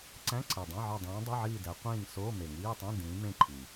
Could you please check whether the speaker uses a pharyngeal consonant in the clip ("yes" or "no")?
yes